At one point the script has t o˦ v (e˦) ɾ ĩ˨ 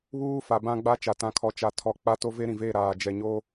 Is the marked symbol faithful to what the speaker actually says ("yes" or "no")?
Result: yes